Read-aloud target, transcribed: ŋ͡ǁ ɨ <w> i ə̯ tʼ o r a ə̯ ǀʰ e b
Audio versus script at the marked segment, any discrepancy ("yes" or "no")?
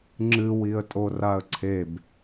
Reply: no